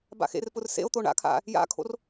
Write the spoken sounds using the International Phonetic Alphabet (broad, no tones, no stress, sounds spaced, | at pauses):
b a̰ x ḛ r p ʊ r s ḛ o̯ t̪ o ɳ a̰ kʰ a̰ | j a̰ kʰ o̰ r